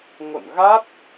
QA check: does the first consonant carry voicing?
yes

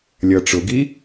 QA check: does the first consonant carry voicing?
yes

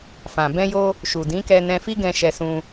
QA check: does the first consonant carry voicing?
no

